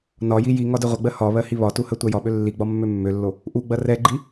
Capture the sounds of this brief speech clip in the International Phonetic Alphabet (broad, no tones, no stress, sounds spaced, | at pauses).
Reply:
n ɒ j i j i ŋ ɒ d e ʁʷ ɐ ɡ͡b ɜ h ɒ β ɜ h i β ɒ t u h ɜ tʷ ɜ j ɒ ɓ ø lː i ɡ͡b ɒ mː ø mː ø lː o | ʔ u ɡ͡b ɐ r ɛ ɡ͡ǃ i